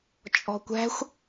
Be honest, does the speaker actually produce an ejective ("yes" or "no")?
yes